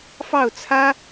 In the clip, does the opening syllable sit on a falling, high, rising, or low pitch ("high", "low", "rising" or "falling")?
falling